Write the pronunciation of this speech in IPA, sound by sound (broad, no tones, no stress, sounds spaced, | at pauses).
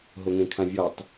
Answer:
ɦ o ŋ ẽ kʰ ã vʲ ɔ tˤ